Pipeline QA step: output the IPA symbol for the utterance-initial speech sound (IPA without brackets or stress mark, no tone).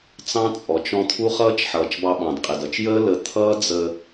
t͡s